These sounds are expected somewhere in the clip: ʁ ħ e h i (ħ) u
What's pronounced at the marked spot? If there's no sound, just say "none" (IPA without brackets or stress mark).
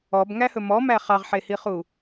χ